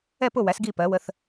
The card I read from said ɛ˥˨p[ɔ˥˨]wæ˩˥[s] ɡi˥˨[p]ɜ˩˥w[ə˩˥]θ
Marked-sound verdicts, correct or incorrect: incorrect: ʊ˥˨, correct, correct, correct

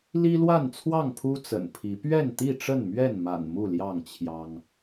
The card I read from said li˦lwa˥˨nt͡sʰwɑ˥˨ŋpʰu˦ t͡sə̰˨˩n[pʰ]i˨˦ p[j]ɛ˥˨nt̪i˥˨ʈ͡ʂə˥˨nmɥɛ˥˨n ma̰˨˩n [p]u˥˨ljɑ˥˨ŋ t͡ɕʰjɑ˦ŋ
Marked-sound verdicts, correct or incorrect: correct, incorrect: ɥ, incorrect: m

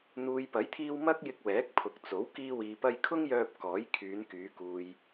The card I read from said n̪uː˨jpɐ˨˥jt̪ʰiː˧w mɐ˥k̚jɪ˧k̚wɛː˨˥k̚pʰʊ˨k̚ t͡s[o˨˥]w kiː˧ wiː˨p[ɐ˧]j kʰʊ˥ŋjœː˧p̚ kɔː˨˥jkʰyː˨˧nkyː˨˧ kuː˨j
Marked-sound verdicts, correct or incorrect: correct, correct

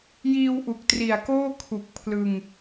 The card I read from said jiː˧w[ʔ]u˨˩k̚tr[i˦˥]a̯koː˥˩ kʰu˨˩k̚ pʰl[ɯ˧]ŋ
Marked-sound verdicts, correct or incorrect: correct, incorrect: i˨˩, correct

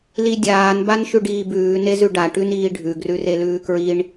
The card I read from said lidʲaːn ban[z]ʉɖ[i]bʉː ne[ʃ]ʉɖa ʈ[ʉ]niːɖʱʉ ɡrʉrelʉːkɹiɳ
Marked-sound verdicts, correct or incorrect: incorrect: ʃ, incorrect: iː, incorrect: z, correct

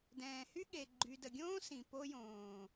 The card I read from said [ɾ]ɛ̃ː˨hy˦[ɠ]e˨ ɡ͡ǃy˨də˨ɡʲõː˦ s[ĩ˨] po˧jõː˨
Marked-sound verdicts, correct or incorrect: incorrect: d, correct, correct

